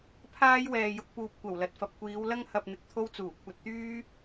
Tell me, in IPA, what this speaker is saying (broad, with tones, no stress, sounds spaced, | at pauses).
pʰ aː˥ j w ɛː˨ j ʊ˧ k̚ p uː˨ p̚ kʷ ɐ˨˩ w l ɐ˨ t̚ f ɐ˨ p̚ kʷ iː˨˧ w l ɐ˥ ŋ h ɐ˨ p̚ n̪ ɪ˨ k̚ t̪ʰ o˥ w t͡s uː˨˩ kʷʰ ɐ˧ t̚ t̪ yː˥